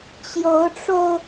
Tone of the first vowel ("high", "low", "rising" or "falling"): rising